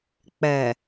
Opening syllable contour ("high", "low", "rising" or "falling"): low